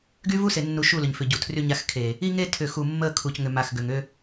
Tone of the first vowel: high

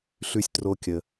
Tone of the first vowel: high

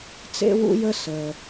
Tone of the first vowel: high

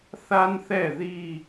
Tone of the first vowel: high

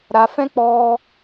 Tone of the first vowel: low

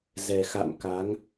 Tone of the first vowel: low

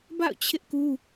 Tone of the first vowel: falling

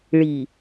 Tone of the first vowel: low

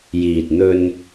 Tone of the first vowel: low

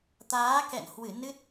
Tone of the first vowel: rising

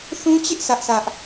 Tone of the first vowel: high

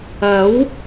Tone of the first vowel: rising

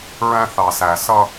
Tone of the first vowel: high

